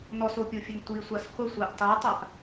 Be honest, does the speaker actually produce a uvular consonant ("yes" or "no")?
yes